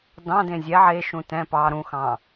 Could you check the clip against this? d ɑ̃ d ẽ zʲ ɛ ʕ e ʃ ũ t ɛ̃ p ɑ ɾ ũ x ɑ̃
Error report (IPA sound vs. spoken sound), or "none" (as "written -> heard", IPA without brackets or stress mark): none